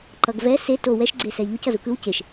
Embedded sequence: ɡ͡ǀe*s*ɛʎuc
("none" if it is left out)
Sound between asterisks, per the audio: s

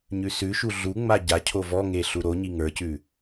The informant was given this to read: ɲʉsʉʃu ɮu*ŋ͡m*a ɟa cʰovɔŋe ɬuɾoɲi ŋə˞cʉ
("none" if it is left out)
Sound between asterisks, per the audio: ŋ͡m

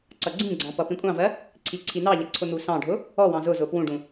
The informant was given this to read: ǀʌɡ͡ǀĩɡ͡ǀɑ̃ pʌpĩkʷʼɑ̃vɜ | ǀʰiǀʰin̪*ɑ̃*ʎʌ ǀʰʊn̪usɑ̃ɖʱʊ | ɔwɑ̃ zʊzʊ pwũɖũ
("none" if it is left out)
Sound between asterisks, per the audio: ɑ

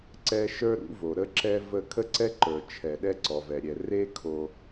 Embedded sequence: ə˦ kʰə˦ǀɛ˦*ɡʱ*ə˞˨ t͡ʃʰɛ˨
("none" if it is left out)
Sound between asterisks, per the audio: ǃ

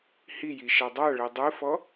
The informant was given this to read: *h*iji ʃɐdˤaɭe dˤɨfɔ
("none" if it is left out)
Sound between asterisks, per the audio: h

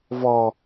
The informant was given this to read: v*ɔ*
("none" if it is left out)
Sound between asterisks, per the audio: ɔ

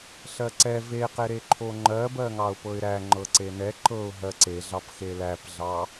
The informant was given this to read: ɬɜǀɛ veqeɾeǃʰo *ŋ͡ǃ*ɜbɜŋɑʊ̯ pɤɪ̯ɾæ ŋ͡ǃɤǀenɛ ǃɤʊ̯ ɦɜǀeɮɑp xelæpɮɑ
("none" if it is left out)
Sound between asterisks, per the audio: ŋ͡ǃ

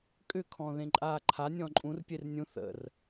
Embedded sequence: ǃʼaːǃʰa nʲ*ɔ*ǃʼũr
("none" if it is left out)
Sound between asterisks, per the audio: ɔ̃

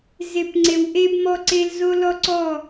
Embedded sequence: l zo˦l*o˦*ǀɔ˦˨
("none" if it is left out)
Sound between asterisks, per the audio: ɔ˦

